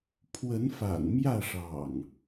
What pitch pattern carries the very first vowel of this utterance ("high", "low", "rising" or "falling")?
rising